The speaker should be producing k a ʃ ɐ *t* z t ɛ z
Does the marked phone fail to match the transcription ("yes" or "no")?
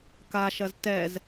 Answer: yes